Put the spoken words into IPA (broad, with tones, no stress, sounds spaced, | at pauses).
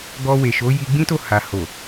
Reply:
ɡ ɔ˧ w e˨ ʃ o˨˦ j i˧ ɡ͡b ĩ˦ t o˦˨ h a˨ h o˨